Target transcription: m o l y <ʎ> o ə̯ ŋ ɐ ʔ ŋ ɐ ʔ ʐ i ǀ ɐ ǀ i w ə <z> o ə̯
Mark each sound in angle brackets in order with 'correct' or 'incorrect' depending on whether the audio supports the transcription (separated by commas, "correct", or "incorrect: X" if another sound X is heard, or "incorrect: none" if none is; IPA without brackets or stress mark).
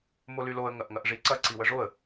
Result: incorrect: l, incorrect: ʐ